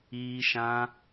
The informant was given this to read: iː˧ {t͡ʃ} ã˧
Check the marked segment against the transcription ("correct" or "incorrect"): incorrect